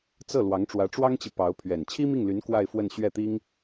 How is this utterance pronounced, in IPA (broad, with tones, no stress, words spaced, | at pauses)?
t͡sɤ˥˩ lwɑ˧˥ŋʈ͡ʂwä˧˥ʈ͡ʂwɑ˥ŋt͡ɕi˨ pɑ˧˥ʊ̯pʰɥɛ˨˩n t͡ɕʰi˥mi˥˩ŋly˧˥n kwa˥˧ɪ̯fwə˥˧n ɕɥɛ˥˩t̪i˥ŋ